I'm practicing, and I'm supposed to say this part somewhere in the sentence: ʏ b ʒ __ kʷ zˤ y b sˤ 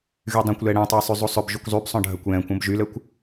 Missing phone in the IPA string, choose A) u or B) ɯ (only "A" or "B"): A